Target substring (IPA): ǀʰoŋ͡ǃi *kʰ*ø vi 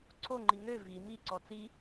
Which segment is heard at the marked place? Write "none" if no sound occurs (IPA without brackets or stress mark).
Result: ŋ